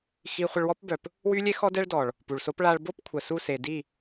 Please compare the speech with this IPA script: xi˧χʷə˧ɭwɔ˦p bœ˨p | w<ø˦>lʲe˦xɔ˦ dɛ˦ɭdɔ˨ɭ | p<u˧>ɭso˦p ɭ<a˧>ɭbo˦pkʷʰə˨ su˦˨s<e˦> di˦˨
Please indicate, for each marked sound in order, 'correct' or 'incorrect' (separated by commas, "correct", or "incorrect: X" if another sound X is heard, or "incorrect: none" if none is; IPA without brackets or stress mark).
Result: incorrect: y˦, incorrect: u˨, correct, incorrect: e˨